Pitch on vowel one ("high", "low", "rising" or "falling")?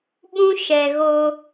high